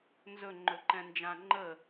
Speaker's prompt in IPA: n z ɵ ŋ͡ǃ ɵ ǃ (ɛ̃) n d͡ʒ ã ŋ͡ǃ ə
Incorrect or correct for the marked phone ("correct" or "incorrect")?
correct